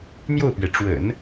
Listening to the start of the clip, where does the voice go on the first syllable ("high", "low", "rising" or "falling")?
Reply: falling